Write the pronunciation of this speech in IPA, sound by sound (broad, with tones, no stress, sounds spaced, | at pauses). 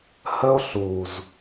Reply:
h ə˦ o̯ ɬ u˨ z